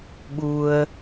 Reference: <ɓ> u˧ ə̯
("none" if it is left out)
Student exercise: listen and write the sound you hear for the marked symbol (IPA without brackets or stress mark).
ɓ